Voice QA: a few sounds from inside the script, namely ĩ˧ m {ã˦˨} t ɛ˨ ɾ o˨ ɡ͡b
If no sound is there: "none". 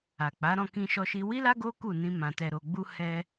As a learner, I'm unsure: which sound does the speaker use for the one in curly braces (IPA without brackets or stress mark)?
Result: ã˨